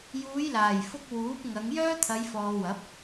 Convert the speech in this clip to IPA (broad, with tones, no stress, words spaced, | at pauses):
juː˨˧jlaː˨˩jfʊ˧k̚ wuː˨˥p̚ŋɐ˨˧ŋ jœː˥t̪ʰɐ˨˧jfɔː˨wɐ˨˥p̚